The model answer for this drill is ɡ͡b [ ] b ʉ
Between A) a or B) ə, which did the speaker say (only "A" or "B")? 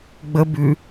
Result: B